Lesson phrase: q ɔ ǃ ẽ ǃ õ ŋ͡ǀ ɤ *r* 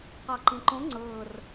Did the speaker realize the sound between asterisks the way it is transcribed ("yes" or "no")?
yes